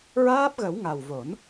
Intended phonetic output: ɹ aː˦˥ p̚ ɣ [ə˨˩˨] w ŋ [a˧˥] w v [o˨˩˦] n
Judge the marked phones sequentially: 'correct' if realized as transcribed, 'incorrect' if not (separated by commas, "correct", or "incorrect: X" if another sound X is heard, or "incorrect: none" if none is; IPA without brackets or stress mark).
incorrect: ə˨˩˦, incorrect: a˨˩, correct